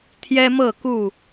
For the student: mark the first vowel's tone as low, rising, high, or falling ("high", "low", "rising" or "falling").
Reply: high